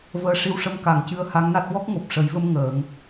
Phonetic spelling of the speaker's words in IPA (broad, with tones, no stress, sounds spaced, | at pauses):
v əː˧˥ ʂ i˧˥ w ʂ ə˧˥ m k a˨˩˨ ŋ c ɨ˧ ə̯ h a˧˥ ŋ n a˦˥ t̚ w ɔ˦˥ k̚ ŋ o˨˩ p̚ ʂ ə˨˩˦ j v ə˧ m ŋ əː˨˩˦ ŋ